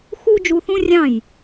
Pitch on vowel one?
high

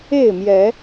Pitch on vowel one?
falling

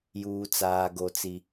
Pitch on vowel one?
high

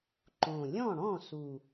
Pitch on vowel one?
low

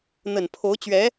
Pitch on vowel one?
low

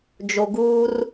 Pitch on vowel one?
low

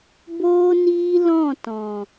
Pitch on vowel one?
high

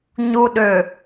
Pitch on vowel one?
low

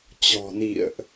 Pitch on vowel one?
low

